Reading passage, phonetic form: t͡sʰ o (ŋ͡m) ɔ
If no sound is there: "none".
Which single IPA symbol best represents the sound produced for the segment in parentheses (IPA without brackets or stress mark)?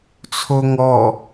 ŋ